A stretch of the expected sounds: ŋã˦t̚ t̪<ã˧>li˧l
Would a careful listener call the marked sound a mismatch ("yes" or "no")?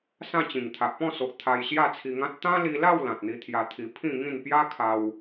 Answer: yes